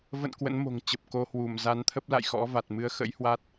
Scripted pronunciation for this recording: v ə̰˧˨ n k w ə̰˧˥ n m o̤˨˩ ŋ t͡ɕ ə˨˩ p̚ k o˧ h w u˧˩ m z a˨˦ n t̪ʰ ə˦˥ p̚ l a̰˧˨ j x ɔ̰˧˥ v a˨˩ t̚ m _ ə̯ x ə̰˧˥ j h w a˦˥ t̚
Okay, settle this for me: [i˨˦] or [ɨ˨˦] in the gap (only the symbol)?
ɨ˨˦